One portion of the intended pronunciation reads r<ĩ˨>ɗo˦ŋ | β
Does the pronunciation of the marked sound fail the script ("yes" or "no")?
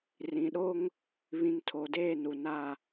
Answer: no